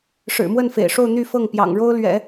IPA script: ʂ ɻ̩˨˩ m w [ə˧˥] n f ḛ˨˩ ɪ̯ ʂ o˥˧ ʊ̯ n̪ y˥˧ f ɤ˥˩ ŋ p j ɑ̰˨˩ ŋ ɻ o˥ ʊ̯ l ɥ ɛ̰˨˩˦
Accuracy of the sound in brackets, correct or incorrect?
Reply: incorrect